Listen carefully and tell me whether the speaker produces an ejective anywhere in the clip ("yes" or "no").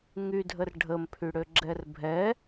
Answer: no